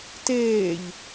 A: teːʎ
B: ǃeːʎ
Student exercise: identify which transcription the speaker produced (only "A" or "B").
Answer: A